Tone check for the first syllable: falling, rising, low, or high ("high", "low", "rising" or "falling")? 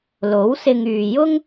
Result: rising